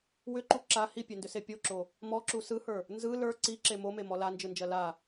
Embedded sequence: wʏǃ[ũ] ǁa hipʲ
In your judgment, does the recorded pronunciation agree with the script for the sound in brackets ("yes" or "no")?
no